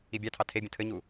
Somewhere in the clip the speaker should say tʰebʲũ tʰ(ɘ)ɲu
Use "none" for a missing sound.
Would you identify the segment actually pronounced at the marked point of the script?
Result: ɘ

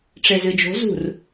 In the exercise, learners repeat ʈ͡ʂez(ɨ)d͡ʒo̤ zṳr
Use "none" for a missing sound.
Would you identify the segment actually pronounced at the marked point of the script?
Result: ɨ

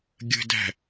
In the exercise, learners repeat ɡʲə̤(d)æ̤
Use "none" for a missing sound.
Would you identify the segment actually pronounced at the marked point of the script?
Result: d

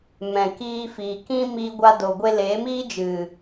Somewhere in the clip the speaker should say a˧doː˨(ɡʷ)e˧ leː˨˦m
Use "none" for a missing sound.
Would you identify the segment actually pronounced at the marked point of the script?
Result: ɡʷ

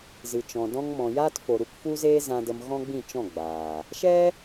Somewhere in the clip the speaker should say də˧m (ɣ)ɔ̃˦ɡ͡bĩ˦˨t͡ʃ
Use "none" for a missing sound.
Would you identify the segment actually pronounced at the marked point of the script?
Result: ɣ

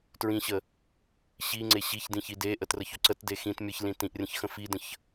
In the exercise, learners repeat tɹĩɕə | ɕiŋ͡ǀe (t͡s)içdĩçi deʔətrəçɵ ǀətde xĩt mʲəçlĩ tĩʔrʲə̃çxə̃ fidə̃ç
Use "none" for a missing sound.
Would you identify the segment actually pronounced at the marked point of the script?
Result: ɕ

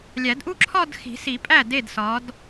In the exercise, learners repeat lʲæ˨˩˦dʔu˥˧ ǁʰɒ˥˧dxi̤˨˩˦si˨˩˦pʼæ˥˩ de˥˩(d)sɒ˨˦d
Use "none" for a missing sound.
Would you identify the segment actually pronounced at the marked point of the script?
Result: d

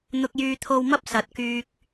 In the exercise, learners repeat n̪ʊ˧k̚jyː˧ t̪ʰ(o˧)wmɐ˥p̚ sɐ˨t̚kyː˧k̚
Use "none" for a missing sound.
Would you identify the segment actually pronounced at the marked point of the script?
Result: o˧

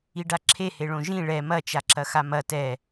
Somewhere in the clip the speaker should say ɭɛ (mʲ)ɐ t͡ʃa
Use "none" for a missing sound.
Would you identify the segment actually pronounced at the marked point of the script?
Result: m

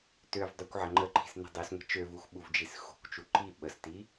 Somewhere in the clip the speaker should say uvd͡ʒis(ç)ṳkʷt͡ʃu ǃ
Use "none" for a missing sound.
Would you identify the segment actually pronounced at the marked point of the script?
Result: x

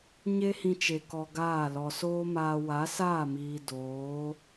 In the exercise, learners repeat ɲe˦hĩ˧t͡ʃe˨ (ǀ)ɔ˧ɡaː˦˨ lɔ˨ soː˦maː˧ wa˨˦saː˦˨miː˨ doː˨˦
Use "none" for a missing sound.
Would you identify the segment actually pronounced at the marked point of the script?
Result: k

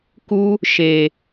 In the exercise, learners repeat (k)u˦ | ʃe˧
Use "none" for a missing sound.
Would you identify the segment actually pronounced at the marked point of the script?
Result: k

